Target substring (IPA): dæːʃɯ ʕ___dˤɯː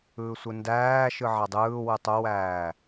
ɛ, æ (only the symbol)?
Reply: æ